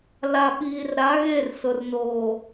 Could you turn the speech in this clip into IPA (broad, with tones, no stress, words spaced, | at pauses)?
la˨ɓiː˨rɾa˨˦ ɣe˦˨rsʊ˨r noː˨